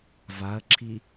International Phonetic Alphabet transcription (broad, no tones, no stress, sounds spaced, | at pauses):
v a ɐ̯ ǁʰ i